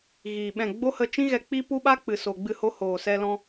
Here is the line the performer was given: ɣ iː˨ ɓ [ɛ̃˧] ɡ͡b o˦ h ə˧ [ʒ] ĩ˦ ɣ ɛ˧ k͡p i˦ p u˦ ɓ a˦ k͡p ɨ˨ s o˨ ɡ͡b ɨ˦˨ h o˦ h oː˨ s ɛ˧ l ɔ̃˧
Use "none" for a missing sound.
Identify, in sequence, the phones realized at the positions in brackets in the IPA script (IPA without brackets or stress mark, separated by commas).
ɛ̃˦˨, t͡ʃ